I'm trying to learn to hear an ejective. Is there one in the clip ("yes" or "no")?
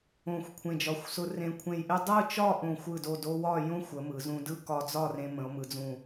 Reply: no